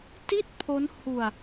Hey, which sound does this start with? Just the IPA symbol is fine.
t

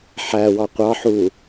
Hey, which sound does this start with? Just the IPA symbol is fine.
ħ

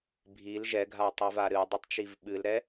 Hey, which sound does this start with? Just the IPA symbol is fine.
bʱ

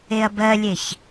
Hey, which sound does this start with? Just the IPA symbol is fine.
e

